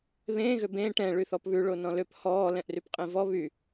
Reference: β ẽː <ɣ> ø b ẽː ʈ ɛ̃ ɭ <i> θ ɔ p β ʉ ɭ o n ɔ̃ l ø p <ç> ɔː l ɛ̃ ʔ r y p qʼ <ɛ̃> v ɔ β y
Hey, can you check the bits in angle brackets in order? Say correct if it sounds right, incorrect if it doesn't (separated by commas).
correct, incorrect, incorrect, incorrect